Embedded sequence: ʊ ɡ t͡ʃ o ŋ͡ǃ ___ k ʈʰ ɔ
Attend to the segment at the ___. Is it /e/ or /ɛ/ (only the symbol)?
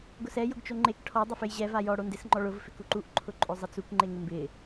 e